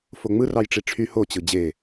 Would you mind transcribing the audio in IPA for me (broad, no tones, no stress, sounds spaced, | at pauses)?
f o ŋ͡m ɯ r ɑ j ʈ͡ʂ i ʈ͡ʂʰ y h o t͡ɕ ɯ d͡ʑ e